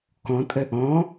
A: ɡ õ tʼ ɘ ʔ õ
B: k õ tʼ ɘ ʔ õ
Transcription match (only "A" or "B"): B